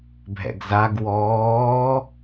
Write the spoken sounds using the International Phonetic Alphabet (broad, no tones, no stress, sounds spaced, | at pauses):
bʱ ɛ̰ ɡ z a ɡ w ɔː